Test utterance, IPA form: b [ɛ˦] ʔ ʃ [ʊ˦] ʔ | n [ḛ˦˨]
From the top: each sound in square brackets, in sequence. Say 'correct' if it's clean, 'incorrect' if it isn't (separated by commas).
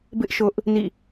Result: incorrect, correct, incorrect